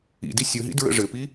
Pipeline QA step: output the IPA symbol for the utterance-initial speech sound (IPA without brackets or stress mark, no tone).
ḭ